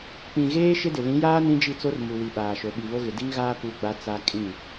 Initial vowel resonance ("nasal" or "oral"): nasal